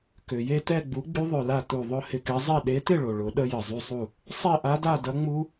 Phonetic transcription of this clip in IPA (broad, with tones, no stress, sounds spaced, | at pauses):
k ø˩ j e˥˨ t ɛ˥˨ ɡ͡b u˨˥ ɡ͡b y˦ ðˤ ø˧˩ l a˥˨ t u˧˩ ðˤ ʊ˥˨ h ɪ˧˩ k ɛ˨˥ zˤ e˥˨ ɗ e˨˥ t ɪ˥˨ ɭ o˩ ɭ ʊ˨˥ ɗ ə˦ j ə˩ zˤ y˦ sˤ u˧˩ | sˤ e˥˨ ʔ a˦ d a˥˨ d ɐ˦ ŋ͡m u˦